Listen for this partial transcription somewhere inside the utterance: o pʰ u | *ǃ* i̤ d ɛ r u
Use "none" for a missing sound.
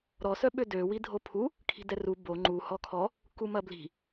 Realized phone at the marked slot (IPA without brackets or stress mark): kʰ